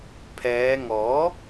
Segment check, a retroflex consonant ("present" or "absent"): absent